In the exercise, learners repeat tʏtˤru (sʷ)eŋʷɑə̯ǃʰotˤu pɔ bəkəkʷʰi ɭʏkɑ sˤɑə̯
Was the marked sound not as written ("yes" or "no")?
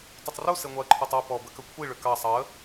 yes